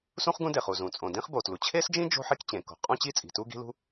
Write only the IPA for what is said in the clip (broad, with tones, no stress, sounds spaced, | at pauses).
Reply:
s ũ˥ χ ɡ ũ˥ d e˩ χ u˩ z ũ˩ t͡sʼ õ˩ d ĩ˥ χ b o˩ t l u˩ t͡ɕʰ e˥ s d͡ʒ ĩ˥ d͡ʒ o̤˥ ħ i˥ k t͡ɕ ẽ˩ k o̤˩ qʼ ũ˥ t͡ɕ i˥ t͡sʼ i̤˩ t u˥ ɡ i̤˥ l ṳ˥